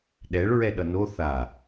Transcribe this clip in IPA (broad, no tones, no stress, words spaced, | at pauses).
ɗɛɭɹɛ ɗʌno θa